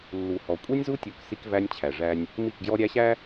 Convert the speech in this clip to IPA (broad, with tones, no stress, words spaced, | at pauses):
lːu˨hɔ˨ kʷʼi˦nʲzu˦tʲu˨k si˦kvæ˦nʲt͡ɕʰæ˨ʐæ˦nʲ | mi˦˨kɡjɔ˦ɾʲæ˦ɕæ˦